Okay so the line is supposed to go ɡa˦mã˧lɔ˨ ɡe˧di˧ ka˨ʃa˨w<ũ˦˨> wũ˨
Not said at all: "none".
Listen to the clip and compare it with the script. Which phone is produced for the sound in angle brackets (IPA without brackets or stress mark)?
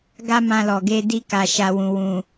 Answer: ũ˨